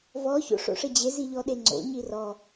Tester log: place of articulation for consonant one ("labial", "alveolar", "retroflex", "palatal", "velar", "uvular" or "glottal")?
labial